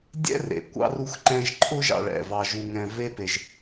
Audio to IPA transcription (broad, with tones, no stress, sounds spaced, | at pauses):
dʲ ɛ̰˥ r ḛ˩ kʷ ɑ̰˥ r u˥ x ǃ ɛ̃˥ ʒ ǃʼ ʊ˥ ʒ ɑ̰˧ ɭ ɛ̰˩ v ɑ˧ ʒ u˧ ŋ ɛ̃˧ v e˥ p e˧ ʒ